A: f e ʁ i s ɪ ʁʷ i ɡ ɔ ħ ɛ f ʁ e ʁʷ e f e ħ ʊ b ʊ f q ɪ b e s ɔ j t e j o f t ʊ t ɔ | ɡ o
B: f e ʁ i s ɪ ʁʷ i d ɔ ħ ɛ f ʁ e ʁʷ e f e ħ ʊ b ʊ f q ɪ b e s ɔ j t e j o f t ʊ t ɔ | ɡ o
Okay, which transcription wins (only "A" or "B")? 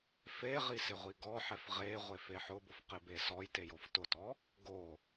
A